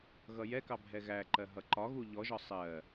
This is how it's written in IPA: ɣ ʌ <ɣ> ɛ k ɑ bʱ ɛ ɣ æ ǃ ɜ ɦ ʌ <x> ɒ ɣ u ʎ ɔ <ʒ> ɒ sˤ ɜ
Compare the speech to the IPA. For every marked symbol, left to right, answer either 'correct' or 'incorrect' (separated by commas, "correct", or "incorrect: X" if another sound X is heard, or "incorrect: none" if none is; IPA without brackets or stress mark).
incorrect: j, incorrect: ǃ, correct